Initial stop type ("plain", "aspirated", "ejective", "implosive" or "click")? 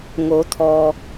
aspirated